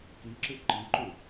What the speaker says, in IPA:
k i ǁ ɪ ǃ i ǃ u

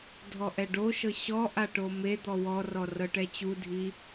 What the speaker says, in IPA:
dʱ ɔ ʔ ɛ ɖ o ʃ ɤ ɕ ɔ ʔ a ʈ o m e d̪ ɔ w ɔ r ɔ r ɤ ʈ ɛ t͡ɕ u dʱ i

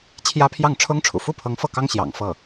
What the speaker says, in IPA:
t͡ɕʰ j ä˥ pʰ j ɑ˥˩ ŋ ʈ͡ʂʰ ʊ˥ ŋ ʈ͡ʂʰ ṵ˨˩ f u˥˩ pʰ ɤ˧˥ ŋ f ɤ˥˩ k ɑ˥ ŋ ɕ j ɑ̰˨˩ ŋ f ɤ˥˩

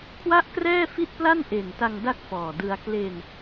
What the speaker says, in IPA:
kʰ w a˥˩ ʔ k r ɛː˥˩ f i˥˩ t̚ p l a˥˩ n ʔ e˨˩ n t a˧ ŋ d a˥˩ k̚ f ɔː˨˩ d ɯ˧ a̯ k l e˧ n

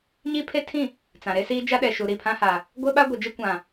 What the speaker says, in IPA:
ɲ i˦ pʰ e˦ tʰ ĩ˦˨ | t͡s ã˨ ɾ e˦ s iː˦ d͡ʒ a˦ ɗ ɛ˨ ʃ u˨ ɾ i˦˨ pʰ ã˦ h a˨ | ɡʷ e˦ ɓ a˦ ɡʷ e˨ d͡ʒ e˦ kʷ ã˨

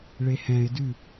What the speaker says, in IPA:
ɭ e h ɛ̃ ɪ̯ d ʉ

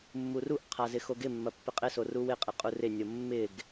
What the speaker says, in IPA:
mː u r u ʔ qʰ a z ɪ x o ɡ ɪ mː ɐ pː ɪ qʼ ɪ s o r u w ɪ qʼ ɪ qʼ u r ɪ nʲ o mː ɪ ɡ

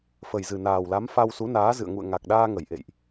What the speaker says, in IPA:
f ə˨˩ j z ɨ˨˩ n aː˨˩ w l a˨˦ m f a˧ w s u˨˦ n aː˨˦ z ɨ̰˧˨ ə̯ ŋ ṵ˧˨ ə̯ ŋ a˨˩ k̚ ɗ aː˧ ŋ ə˧˩ j ʔ ḛ˧˨ j ʔ

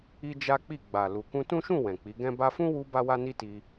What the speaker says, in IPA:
i˦ d͡ʒ a˦ k͡p i˦˨ ɡ͡b a˨ l u˨ k ũ˧ t ũ˦ ʃ ũ˦˨ w ɛ̃˨ k͡p i˨˦ ɡ ɛ̃˦ b a˧ f ũ˦ w u˧ b a˦ w a˦ n i˦ t i˧

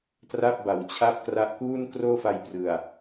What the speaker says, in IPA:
t r a˥˩ p̚ b a˩˦ w t͡ɕʰ a˥˩ p̚ k r a˦˥ ʔ k uː˥˩ n k r oː˥˩ f a˧ j p r ɯ˨˩ a̯

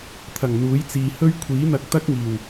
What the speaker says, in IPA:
t̪ʰ ɐ˨˩ ŋ n̪ uː˨˥ j t͡s iː˨ h ɵ˥ ɥ kʷʰ iː˨˥ n̪ ɐ˧ k̚ t̪ ɐ˥ k̚ ŋ iː˨˩ w

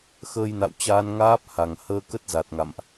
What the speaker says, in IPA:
x əː˧ j n a̰˧˨ w t͡ɕ aː˧ n ŋ aː˦˥ p̚ h a˨˩ ŋ h əː˧ k ə˦˥ t̚ z a˨˩ t̚ ŋ a̰˧˨ m ʔ

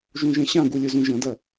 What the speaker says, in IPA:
ʒ ũ ʒ ɛ̃ ɕ ã ɡ u lʲ ʊ z ũ ʒ ɐ̃ d ɐ

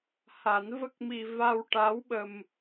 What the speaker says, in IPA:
h a˨˩˦ n v ə˦˥ k̚ m i˧ v a˧ w ʈ a˧˥ w ɓ ə˧ m

